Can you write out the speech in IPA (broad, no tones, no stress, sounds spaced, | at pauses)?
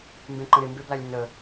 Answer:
m b ẽ ǃ ə̃ ɾ ɪ m b e b l a lʲ ɾʲ ə̃ n ə